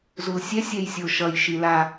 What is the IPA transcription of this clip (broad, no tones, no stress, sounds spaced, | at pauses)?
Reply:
z u l sʲ ɛ sʲ ɛ j sʲ o ʃ ʌ j ʃ i l a